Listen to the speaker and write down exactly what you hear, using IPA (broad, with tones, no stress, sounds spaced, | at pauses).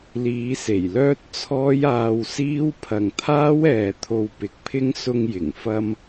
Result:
l iː˨˧ s e˨˩ j l œː˥ t̚ t͡sʰ ɔː˥ j aː˧ w s iː˥ w pʰ ɐ˨ ŋ t̪ʰ aː˥ w ɛː˨ t̪ʰ o˧ w p ɪ˨˥ k̚ pʰ ɪ˥ ŋ s ʊ˧ ŋ j ɪ˨˩ ŋ f ɐ˧ m